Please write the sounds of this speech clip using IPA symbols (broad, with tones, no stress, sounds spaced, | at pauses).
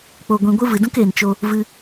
k͡p o˨ ɡʷ ĩ˨ ɡʷ ɨ˦ v ɨ˨ d ũ˦ k eː˨ n t͡ʃ o˧ | v ɨ˧